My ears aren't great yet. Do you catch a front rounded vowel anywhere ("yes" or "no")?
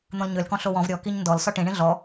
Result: yes